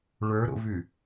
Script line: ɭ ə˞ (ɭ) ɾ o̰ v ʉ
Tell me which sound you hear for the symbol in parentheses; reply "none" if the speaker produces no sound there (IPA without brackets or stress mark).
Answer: none